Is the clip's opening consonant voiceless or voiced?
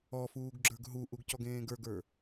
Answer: voiceless